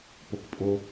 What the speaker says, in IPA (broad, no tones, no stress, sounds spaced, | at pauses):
p o k pʼ o